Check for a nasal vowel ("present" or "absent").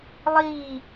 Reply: absent